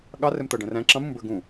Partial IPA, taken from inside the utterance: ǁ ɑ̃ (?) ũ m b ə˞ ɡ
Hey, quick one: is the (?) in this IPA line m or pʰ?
m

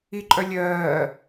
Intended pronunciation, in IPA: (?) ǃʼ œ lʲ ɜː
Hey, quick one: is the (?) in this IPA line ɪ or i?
i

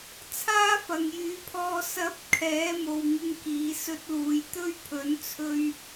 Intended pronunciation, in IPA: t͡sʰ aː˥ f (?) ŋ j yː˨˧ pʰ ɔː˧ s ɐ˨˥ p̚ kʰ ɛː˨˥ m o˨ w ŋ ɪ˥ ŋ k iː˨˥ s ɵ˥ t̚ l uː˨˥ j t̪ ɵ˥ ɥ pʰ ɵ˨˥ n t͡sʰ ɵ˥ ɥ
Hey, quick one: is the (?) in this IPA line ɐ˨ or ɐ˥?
ɐ˨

